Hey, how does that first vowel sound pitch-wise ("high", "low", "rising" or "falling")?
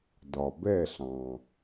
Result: low